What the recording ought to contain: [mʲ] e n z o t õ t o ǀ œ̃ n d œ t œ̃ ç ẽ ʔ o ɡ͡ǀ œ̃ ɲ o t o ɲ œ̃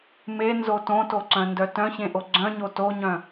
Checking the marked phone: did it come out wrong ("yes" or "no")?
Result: yes